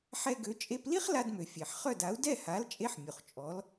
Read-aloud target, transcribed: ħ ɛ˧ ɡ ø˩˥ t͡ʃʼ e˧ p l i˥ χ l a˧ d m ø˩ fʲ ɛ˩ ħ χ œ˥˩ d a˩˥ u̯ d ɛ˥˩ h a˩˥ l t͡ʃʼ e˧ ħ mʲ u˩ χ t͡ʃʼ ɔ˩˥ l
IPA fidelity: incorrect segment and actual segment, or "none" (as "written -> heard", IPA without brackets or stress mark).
none